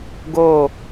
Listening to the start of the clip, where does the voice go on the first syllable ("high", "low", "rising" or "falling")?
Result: falling